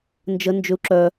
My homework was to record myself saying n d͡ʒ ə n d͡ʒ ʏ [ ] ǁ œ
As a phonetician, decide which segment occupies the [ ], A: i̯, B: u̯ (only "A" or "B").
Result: B